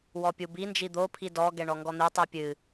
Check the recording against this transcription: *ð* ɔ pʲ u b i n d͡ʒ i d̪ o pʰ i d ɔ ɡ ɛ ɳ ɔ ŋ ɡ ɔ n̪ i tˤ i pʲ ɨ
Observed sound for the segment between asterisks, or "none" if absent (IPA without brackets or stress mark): w